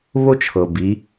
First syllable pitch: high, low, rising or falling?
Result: high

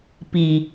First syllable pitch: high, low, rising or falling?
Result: low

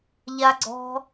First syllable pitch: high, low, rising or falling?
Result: high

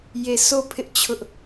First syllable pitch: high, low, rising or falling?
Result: falling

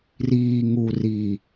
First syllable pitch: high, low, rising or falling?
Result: low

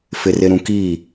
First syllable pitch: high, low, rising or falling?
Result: low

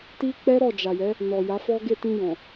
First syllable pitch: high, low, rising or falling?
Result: high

